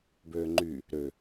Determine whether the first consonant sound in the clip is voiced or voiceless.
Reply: voiced